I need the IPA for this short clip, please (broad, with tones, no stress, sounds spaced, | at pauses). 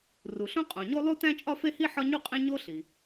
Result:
r u˩ ɬ õ˥ qʼ õ˩ ɲ o˥ lˠ u˥ t æ̃˥ t͡ʃʼ ɒ˥ f e˥ h i˥ ħ ɒ˥ ɲ u˥ qʼ ẽ˥ ɲ o˥ ɬ i˩